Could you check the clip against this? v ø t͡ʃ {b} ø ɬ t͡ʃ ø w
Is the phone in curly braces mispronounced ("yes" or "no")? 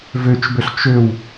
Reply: no